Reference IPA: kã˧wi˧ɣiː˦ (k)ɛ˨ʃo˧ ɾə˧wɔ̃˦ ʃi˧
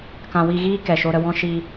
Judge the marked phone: correct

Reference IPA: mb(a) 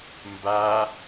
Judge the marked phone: correct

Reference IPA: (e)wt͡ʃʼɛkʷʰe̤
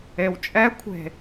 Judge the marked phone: correct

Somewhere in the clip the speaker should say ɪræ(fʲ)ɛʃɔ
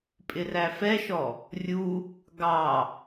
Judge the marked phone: incorrect: f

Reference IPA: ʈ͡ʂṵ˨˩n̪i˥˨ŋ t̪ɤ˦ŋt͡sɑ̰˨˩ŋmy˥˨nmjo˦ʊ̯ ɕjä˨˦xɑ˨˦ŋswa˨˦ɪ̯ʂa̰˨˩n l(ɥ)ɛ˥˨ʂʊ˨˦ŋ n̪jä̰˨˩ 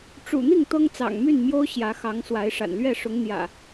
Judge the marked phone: correct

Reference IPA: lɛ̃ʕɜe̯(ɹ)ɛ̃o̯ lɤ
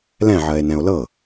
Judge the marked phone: incorrect: n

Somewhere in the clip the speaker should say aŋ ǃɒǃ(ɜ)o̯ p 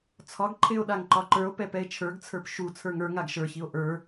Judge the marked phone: incorrect: ə˞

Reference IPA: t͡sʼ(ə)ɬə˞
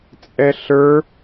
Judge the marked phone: incorrect: ɛ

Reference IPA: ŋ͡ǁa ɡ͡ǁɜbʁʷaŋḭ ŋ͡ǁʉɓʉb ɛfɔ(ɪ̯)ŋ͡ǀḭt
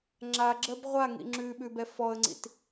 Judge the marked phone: incorrect: ə̯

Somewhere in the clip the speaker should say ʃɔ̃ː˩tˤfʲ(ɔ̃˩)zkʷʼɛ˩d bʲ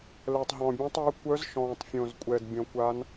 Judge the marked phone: incorrect: õ˩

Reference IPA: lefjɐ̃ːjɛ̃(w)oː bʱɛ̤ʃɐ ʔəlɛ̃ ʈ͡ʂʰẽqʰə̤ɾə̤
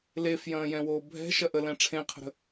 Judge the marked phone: correct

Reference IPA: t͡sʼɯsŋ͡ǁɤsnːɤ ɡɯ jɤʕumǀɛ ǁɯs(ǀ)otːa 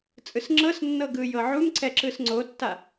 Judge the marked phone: incorrect: ŋ͡ǀ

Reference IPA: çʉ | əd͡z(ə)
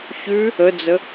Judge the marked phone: correct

